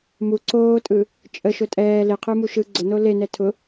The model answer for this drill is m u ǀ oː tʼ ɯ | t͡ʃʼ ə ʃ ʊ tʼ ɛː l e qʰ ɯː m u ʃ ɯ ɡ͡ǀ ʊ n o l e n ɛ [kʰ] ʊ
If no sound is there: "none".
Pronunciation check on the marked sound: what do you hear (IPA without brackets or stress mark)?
tʰ